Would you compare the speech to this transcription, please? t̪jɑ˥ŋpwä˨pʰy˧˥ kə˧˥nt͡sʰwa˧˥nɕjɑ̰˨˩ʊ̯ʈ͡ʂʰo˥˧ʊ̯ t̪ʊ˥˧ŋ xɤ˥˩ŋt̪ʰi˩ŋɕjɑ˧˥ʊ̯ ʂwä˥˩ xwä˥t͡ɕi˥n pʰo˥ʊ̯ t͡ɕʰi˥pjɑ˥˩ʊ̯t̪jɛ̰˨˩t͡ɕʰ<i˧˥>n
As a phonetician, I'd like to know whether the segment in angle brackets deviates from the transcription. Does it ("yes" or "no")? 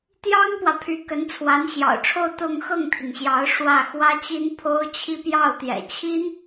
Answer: yes